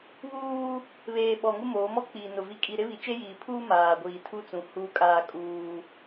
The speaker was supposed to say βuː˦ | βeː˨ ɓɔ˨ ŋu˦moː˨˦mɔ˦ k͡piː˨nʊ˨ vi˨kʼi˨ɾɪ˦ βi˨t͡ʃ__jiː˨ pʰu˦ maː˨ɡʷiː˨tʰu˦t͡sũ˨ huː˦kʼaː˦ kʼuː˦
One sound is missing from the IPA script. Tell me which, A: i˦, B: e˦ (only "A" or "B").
B